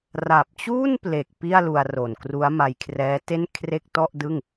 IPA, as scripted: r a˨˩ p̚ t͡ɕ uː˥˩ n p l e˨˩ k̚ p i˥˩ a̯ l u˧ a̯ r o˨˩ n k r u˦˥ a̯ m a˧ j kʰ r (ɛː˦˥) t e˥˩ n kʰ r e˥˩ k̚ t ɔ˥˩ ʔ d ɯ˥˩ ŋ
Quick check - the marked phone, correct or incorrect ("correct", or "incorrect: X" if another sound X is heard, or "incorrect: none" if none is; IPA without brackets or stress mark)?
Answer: correct